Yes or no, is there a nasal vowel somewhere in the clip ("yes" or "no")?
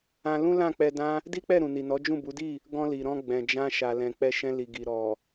yes